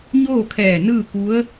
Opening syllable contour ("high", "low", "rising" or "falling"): falling